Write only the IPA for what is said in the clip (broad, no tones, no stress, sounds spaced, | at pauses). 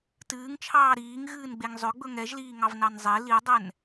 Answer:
t ɨː ŋ t͡ʃʰ ɑː ɾ iː ŋ ɣ ɨː n ɡ͡b e ŋ zˤ ø ɡ͡b ɵ ŋ ɛ ʒ l iː ŋ ɑ v n ɑ n zˤ e l i ə̯ dˤ ɛ n